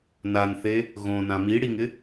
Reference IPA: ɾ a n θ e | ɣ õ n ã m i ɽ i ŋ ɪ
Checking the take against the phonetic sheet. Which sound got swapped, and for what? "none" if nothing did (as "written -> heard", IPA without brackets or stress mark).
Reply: ɾ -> n